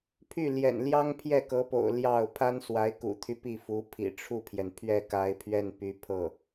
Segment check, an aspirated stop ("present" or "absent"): present